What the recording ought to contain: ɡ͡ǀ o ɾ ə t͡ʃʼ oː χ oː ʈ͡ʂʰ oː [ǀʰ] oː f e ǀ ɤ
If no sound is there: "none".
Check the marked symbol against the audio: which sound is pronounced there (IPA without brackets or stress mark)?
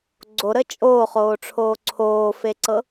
ǀʰ